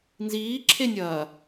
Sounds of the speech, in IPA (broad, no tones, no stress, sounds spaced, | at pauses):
n z iː ǁʰ e nʲ ɐː